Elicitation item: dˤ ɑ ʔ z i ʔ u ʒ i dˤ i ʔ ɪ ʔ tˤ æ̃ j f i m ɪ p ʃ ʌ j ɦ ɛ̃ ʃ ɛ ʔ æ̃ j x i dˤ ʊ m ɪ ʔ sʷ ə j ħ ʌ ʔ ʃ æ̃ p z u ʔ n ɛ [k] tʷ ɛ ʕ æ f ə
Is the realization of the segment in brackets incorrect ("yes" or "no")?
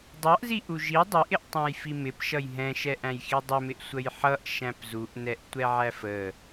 yes